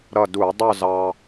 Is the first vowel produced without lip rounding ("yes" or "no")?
yes